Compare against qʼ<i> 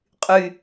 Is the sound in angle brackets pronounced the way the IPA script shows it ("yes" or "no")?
no